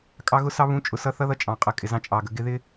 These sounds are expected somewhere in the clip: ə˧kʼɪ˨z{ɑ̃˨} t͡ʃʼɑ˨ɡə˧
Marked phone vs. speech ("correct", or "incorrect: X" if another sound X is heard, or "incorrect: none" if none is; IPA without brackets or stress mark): incorrect: ɑ̃˦